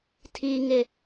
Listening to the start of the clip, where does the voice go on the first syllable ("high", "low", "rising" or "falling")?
high